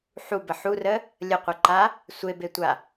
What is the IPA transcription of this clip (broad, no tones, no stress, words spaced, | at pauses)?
ħubə ħurə | lʲəqʷeǃa | sʷebetʷa